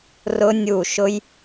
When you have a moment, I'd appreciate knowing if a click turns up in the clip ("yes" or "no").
no